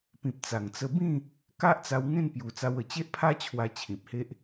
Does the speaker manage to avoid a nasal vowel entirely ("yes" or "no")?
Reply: no